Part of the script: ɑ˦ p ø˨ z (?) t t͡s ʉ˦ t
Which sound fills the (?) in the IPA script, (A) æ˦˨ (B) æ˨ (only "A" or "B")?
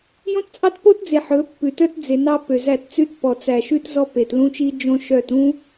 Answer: A